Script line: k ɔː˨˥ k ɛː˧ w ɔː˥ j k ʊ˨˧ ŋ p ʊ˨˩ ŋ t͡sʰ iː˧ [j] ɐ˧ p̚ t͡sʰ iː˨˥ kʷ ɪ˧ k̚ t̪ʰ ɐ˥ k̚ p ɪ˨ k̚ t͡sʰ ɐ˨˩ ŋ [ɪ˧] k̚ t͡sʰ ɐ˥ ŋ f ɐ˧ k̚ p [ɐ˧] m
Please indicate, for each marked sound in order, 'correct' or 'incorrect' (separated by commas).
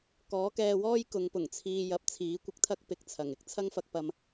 correct, correct, correct